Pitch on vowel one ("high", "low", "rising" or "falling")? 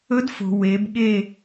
rising